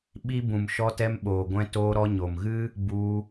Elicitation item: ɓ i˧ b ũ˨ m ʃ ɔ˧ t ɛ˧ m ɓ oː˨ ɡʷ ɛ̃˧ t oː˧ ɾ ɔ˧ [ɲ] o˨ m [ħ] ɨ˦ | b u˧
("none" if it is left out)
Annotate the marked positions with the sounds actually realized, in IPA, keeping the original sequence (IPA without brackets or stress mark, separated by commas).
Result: ɲ, ɣ